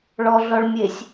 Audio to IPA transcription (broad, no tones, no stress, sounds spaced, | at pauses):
ɭ ɔ ɮ ɔ ɭ mʲ e sʲ